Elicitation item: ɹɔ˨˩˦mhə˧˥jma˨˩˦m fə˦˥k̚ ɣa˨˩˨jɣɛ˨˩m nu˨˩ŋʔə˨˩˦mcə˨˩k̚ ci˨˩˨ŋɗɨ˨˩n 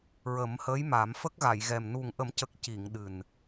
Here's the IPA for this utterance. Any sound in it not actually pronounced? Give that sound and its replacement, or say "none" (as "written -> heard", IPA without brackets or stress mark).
ɔ˨˩˦ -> ə˨˩˦